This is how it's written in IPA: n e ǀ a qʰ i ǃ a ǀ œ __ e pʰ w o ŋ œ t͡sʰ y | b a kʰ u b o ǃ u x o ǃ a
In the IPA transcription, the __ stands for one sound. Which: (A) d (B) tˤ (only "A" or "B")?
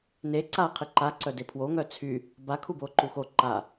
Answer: A